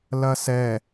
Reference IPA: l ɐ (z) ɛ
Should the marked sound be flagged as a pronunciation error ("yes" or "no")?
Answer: yes